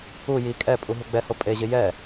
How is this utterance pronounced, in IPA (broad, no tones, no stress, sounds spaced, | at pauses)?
u j i kʼ ɛ pʼ u ɦ u ɡ͡b ɛ h o pʼ e ʑ ɪ j ɛ